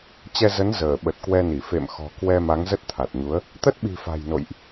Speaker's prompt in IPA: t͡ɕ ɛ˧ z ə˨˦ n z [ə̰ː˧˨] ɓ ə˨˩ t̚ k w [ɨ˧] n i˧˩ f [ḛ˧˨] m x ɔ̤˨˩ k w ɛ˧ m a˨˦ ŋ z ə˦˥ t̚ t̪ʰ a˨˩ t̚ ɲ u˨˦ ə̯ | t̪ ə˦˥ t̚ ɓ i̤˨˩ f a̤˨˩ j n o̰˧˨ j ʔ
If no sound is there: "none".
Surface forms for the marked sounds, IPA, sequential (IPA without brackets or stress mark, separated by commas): əː˧˩, ɛ˧, ḛ˧˨